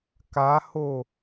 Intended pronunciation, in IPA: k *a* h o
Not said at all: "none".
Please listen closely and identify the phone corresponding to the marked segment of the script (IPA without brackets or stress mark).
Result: a